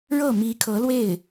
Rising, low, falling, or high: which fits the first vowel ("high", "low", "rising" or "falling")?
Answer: falling